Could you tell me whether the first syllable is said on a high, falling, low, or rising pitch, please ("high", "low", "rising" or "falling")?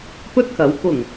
high